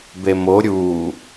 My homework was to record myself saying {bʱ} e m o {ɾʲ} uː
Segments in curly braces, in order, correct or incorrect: incorrect: b, correct

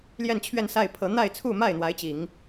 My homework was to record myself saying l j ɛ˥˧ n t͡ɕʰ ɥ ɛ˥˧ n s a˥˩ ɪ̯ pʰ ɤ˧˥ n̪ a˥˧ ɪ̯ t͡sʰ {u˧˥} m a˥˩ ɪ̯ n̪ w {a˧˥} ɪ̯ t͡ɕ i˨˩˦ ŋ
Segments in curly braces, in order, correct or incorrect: incorrect: u˥˧, correct

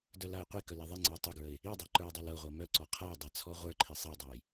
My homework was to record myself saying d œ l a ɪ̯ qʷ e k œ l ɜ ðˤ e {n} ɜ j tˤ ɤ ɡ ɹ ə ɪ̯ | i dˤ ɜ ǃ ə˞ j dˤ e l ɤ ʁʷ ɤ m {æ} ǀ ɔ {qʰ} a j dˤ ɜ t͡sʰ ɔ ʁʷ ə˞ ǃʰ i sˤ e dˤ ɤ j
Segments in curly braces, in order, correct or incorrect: incorrect: ŋ͡ǀ, incorrect: œ, correct

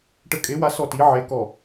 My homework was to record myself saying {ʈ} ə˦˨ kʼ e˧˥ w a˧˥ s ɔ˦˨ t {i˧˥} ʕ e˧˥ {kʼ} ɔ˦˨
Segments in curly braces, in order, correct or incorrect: correct, correct, incorrect: k

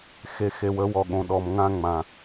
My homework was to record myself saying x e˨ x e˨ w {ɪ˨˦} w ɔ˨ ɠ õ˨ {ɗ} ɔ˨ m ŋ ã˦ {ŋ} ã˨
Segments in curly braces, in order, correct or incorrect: incorrect: ə˨˦, correct, incorrect: ŋ͡m

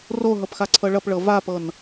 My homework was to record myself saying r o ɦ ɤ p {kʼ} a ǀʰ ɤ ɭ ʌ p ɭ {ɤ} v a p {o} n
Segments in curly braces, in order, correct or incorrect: incorrect: x, correct, incorrect: ɤ

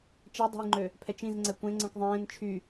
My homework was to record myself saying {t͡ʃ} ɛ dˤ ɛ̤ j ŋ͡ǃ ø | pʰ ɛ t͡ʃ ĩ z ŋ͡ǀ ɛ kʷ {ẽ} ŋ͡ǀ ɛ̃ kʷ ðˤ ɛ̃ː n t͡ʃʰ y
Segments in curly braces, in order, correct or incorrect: correct, correct

